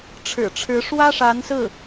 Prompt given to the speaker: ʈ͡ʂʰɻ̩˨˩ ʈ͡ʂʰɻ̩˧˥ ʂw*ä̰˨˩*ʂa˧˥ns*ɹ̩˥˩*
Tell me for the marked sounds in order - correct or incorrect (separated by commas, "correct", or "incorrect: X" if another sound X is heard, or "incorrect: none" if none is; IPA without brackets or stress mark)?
incorrect: ä˥, correct